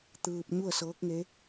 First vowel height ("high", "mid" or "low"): high